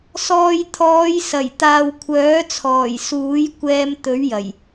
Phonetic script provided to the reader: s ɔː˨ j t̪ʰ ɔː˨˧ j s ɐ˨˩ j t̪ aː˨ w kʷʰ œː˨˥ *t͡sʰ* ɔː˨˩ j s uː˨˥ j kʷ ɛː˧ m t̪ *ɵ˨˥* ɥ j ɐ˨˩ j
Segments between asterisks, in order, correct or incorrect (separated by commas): correct, correct